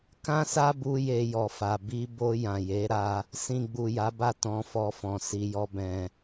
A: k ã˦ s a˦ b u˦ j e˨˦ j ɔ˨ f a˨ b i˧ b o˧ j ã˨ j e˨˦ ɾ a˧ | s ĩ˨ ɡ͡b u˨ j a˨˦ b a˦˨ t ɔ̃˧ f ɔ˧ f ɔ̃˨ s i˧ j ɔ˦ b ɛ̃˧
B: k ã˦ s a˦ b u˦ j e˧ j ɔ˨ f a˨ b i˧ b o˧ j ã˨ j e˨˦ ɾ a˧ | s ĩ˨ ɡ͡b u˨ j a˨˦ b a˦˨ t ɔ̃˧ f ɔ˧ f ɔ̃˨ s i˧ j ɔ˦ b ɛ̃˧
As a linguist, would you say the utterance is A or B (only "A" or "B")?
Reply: B